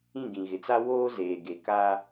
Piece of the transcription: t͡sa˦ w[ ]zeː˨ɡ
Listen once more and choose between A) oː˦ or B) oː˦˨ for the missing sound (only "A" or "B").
A